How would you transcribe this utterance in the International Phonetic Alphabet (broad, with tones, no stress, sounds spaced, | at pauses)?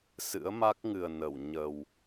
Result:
s ɨ̰˧˥ ə̯ m a˦˥ k̚ ŋ ɨ˨˩ ə̯ n ə˧˩ w ɲ ə˨˩ w